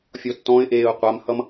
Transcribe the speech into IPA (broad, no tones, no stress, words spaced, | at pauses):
fʲɔtːɔ̃ɪ̯ʔeːʊ̯ qʷamhʌm